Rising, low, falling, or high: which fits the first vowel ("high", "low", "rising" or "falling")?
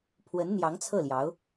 rising